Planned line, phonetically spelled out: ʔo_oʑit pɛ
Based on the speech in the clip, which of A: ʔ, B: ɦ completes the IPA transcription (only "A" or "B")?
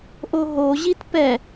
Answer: B